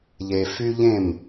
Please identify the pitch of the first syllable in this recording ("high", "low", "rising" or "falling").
low